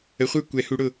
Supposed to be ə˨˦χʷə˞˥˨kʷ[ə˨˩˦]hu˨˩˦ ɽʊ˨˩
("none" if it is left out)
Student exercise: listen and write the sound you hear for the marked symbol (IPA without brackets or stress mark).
ɛ˨˩˦